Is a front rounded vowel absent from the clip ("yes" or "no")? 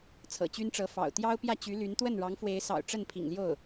no